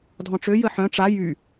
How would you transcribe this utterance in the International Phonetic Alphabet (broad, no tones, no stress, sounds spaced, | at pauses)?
dʱ ɔ̃ ʈ͡ʂ ø j ə ħ œ̃ ʈ͡ʂ a j y